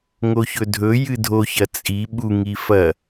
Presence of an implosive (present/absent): present